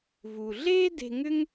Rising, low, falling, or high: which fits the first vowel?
low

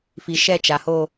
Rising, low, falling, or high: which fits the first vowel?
low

